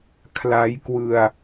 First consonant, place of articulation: velar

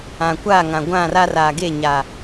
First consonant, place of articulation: velar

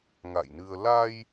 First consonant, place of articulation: velar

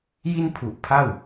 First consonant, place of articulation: palatal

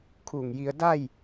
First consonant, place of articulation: velar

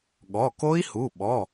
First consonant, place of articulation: velar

